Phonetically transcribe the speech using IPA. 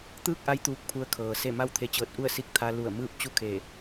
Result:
t̪ɯː˥˨k̚ʔa˧˥j t̪uː˧k̚pʰu˧ə̯ kʰɤː˩se˥˨ ma˥˨wt̪ʰe˧t͡ɕɤː˧t̚ʔu˥˨ə̯ si˧˥k̚t̪ʰa˧lu˧˩ə̯ mɯː˥˨p̚t͡ɕu˥˨kʰe˧˩

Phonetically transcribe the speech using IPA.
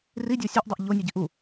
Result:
ridʲɔ sʲɐʔdˤɐʔ ʎonʲuɟiʔ u

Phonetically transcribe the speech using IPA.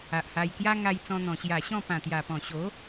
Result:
a˨ʔha˧jkja˦ ŋa˧jt͡sɔ̃˧n̪ɔ̃˨˩ ɕja˨˩ɕɔ̃˥˧pã˨˩t̪ja˨˩ pɔ̃˨˩ɕo˨˦

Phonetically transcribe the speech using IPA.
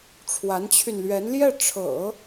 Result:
ʈ͡ʂʰwa˧˥nt͡ɕʰy˧nlɥɛ˧˥n ljɛ˥˩ʈ͡ʂʰɤ̰˨˩˦

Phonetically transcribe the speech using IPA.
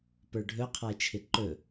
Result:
pə˞ɖʱɵ qʰae̯t͡ʃʰɪǃɵ

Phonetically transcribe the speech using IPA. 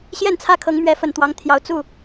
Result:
ɕjɛ˥˨nt͡sʰä˦kʰɤ˨˦ŋmɥɛ˨˦ fə˨˩nt̪wɑ˨˦ŋt̪ʰjɑ˨˦ʊ̯ t͡su˥˨

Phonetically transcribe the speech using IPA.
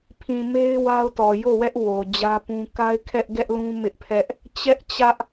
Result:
pʰĩ˨me˦ɪ̯ wa˦ʊ̯tɔ˨ jo˦˨wɛ˦ʔ wo˨d͡ʑä˦ pũ˦ ka˦ɪ̯kʰɛ˦ʔɡɛ˦ʔlũ˦ mɪ˦ʔpʰɛ˦ʔ | t͡ɕɛ˦ʔt͡ɕä˦ʔ

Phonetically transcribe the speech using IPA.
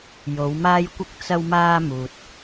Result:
jo˨˧wmaː˥jkʷɪ˥k̚ t͡sɐ˥wmaː˥ muː˨t̚

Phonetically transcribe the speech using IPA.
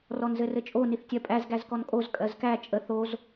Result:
rɔnzɘrɘt͡ʃʼo niθtʲɜpʼæz ɡæzkɔnkʼoz kʼɜzkæ t͡ʃʼə θoz

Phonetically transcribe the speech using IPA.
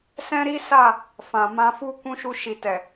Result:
sɛ̃˦ɾi˦sa˦˨ | fã˨mã˧fu˦ kũ˧ ʃu˧ʃi˨tɛ˨

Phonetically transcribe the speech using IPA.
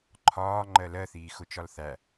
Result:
ǃʰɒː ŋ͡ǃɜlɜθiː xʊt͡ʃɒlθæ

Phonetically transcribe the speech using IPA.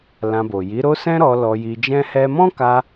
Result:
lã˧bo˨ ji˨˦ɾo˦ sɛ̃˦ɾɔ˧ lɔ˧ji˧d͡ʒɛ̃˦hɛ˦ mɔ̃˦ka˧

